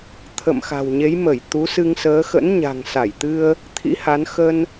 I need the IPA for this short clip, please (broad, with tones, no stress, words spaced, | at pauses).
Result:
t̪ʰə̰˧˨m xa̤˨˩wɲe˨˦jmə˧˩j t̪u˨˦sɨ˧ŋsəː˨˦ xə̰˧˥nɲa̤˨˩ŋsa˧˩jt̪ɨ˧ə̯ | t̪ʰḭ˧˥ha˨˦n xə˧n